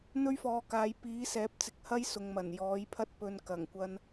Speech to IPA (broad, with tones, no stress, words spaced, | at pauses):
n̪ɵ˥ɥfɔː˨˧kaː˨˧j piː˨˥sɛː˨˥p̚t͡sɪ˨k̚ hɐ˥j sʊ˨ŋmɐ˨˩n jɔː˨˥jpʰɐ˥t̚pɵ˧n kɐ˨˩ŋkʷɐ˧n